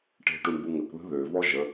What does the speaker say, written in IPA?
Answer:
ʈ e̤ ʈ u ɳ b u ŋ ə k ð ə̤ ð ø v ɔ ʒ ə

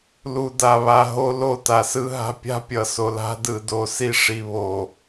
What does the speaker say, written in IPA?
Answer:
l u˨ d a˨ β a˨ ɦ o˦ l o˦˨ t a˨ s ɯ˦ ɦ a̤˦ pʲ a̤˦ pʲ ʌ˨ s o˨ l a̤˦ d ɯ˨ d o˨ s i˦ ʂ i˨ β o˨

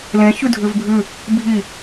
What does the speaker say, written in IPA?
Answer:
l ẽ ç ʉ dʱ ʉ v bʱ ʉ | bʱ i

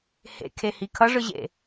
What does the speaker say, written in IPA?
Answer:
h ḛ kʰ e h i kʰ ʌ ʐ ɯ ʑ ḛ

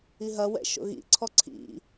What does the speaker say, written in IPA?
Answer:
i ɦ ɐ w ɛ̰ ʃ o̰ ɣ ḭ ǀʰ ɔ ǀʰ ḭ

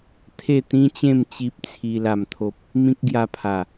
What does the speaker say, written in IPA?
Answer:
t̪ʰ e˥˧ t̪ ĩ˦ t͡ɕ ẽ˥˧ m t͡ɕ i˦ p̚ t͡sʰ i˧ l a˨˩ m t̪ʰ o˨ p̚ | m ĩ˦ k̚ ɡ j a˧ pʰ a˨˩

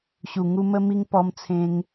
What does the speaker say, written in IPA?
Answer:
ɕ u˨˩ ŋ u˧ m ə˧ m i˧ ŋ p ɔ˧ m t͡sʰ ẽ˧ ŋ

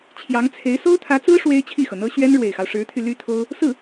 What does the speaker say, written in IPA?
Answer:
t͡ɕʰ j ɑ˧˥ ŋ t͡sʰ e˧˥ ɪ̯ s o˥ ʊ̯ t̪ʰ ä˧˥ t͡s ɹ̩˥ ʂ w e˥ ɪ̯ t͡ɕʰ i˥˩ x ɤ˩ n̪ ɤ˥ ɕ ɥ ɛ˥ n ɻ w e˨˩ ɪ̯ x ɑ˦ ʊ̯ ʂ ɻ̩˧˥ t̪ʰ y˧ l y˥ t̪ʰ o˥ ʊ̯ | s ɹ̩˥˩

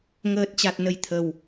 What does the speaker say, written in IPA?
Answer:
ŋ əː˨˩ t̚ t͡ɕ a˨˩ t̚ n ə˨˩ j t̪ʰ ə˨˩ w

